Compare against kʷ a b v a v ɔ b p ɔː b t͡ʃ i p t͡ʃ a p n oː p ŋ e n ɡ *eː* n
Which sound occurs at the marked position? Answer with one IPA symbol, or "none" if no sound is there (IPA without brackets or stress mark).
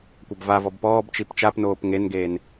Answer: eː